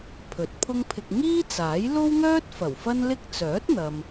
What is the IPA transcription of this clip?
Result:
pʰ ɵ˨˥ t̚ pʰ ʊ˥ ŋ pʰ ɪ˧ k̚ ŋ iː˥ t͡s aː˨˥ j l o˥ w ŋ œː˥ t̚ f ɐ˨˩ w f ɐ˥ n l ɪ˥ k̚ t͡s œː˨˥ t̚ n̪ ɐ˨ m

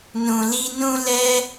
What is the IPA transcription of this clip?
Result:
n ũ˨ l i˧ n ũ˦ l ɛ˦

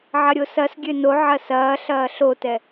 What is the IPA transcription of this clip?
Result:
ʕ ɐ ɾʲ o s ɐ s ɡʲ ø n o ʕ ɐ s ɐː ɬ ɐː ɬ o t ɛ

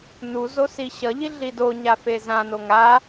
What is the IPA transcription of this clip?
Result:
n u z o s i ɕ ʌ ʎ i ɮ i d o ɲ a f e z ã n o ŋ a

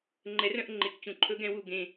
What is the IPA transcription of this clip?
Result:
ŋ͡ǃ ɛ˨˦ r œ̃˧ ʔ ŋ͡ǃ e˨ k t͡ɕ ũ˨ ǃʰ ɵ˦ ɡ ɛ̃˦ w u˧ ɡ ẽ˧

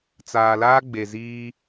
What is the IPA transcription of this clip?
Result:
t͡s aː˨ l aː˦ ɡ͡b e˨ z iː˦

